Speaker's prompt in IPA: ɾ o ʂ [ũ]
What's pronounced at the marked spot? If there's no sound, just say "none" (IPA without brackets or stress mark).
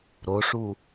u